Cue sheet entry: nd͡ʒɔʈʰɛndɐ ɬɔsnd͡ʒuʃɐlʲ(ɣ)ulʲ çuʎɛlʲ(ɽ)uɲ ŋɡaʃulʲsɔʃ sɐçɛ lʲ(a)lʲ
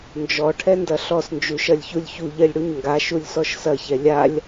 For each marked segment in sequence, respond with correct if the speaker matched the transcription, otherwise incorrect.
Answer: incorrect, correct, correct

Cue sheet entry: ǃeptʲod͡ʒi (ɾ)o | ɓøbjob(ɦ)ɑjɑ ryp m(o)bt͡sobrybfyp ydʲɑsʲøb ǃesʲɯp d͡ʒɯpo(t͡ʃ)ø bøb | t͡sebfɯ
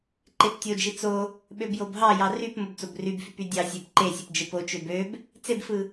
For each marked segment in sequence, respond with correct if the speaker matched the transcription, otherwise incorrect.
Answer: incorrect, correct, correct, correct

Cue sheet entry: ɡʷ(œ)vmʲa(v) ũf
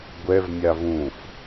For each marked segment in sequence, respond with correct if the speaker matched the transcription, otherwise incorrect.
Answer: incorrect, correct

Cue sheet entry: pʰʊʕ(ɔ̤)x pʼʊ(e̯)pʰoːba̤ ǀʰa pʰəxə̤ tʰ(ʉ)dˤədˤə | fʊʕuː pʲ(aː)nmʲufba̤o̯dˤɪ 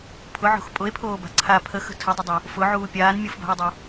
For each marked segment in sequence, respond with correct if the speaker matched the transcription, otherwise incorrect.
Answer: incorrect, correct, incorrect, correct

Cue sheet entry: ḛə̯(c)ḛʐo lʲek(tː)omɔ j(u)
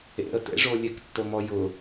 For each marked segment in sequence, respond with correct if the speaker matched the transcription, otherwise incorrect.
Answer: incorrect, correct, incorrect

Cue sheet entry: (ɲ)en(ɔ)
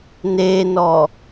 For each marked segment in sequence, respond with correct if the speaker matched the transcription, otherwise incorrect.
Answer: incorrect, correct

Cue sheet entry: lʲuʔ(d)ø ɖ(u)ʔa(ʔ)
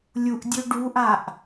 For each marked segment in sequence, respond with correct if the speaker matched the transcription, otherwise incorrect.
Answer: incorrect, correct, correct

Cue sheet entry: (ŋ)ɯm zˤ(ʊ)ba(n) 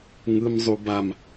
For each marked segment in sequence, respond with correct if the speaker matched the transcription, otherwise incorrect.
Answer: correct, incorrect, incorrect

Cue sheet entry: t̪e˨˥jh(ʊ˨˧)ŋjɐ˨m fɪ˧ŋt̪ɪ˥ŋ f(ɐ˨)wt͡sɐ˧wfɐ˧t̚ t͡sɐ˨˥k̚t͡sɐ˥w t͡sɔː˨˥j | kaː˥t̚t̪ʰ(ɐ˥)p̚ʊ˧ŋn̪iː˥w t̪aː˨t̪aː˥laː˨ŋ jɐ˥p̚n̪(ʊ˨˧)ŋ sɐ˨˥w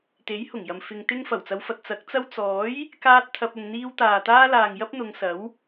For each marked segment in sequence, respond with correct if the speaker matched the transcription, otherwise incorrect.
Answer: incorrect, incorrect, incorrect, correct

